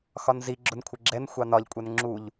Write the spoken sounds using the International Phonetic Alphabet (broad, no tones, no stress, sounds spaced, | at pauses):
x ɒ n z i ɡ͡ǁ ʊ n kʷʰ ɪ ɡ͡ǁ ɛ n xʷ ɑ n ɒ ʎ kʷʼ ɛ n ŋ͡ǁ u ʎ